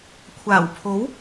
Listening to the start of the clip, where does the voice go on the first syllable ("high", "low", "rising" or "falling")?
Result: low